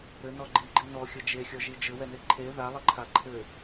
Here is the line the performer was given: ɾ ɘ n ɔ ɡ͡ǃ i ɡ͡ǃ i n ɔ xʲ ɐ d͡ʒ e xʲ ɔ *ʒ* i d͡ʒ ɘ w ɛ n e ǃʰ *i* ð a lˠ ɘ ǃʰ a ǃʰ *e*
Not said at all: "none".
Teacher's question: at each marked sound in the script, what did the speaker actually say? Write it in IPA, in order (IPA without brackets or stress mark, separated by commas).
ʒ, e, ɘ